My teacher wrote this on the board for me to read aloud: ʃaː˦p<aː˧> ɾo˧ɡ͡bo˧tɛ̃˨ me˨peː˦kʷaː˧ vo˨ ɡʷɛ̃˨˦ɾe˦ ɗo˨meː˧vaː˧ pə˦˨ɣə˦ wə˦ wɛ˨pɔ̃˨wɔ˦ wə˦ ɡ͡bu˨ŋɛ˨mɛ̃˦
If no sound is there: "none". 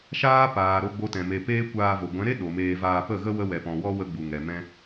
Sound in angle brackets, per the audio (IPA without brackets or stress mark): aː˨